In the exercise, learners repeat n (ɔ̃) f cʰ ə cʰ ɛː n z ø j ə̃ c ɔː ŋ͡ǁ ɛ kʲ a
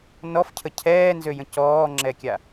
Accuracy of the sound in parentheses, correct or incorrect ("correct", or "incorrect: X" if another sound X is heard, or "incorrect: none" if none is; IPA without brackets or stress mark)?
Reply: incorrect: ɔ